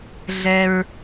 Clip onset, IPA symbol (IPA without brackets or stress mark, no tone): ɮ